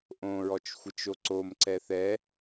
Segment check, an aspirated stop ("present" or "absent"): absent